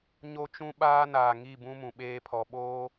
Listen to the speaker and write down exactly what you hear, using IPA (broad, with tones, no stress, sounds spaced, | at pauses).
ɲ o˦ t͡ʃ ũ˦ ɓ aː˦ n aː˨ ŋ i˦˨ b ũ˦ m ũ˨ ɓ eː˦ pʰ ɔ˨ ɓ oː˦